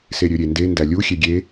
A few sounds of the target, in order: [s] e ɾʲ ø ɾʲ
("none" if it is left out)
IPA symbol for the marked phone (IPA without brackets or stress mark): s